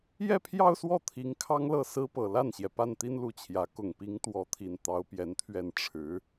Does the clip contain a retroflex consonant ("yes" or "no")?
yes